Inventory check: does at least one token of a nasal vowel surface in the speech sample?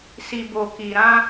yes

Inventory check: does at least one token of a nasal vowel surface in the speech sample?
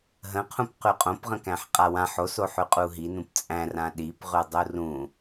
yes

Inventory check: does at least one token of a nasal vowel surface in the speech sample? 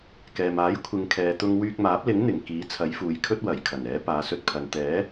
no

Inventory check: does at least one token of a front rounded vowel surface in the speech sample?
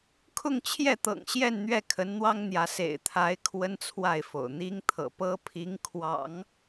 no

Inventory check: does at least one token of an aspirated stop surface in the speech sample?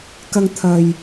yes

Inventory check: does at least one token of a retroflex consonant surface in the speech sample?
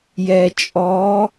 no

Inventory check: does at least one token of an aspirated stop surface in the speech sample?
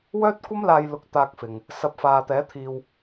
yes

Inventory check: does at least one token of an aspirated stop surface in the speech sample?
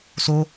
no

